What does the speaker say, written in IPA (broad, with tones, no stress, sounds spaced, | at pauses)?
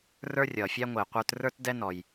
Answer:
r ə˞˥ rʲ ʌː˩ fʲ æ˥ ŋʷ ɪː˩ qʷ ə˞˦ t r ə˞˥ t d ɛ˦ n ɔ˩ j